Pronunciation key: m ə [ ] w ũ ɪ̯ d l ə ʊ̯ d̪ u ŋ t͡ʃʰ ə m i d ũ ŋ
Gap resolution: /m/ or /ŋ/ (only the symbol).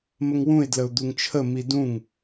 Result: ŋ